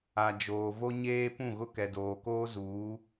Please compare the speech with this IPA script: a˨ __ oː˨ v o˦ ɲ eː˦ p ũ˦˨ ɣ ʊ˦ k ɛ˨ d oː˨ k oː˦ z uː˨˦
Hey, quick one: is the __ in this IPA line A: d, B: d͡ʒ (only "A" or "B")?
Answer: B